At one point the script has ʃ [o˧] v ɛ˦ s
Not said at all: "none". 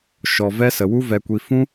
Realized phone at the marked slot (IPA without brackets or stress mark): ɔ˧